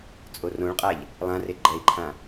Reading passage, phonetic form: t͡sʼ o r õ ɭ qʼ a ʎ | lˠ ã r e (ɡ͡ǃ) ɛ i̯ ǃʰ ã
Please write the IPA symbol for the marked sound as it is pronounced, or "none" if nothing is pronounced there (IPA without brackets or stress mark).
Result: ɡ͡ǃ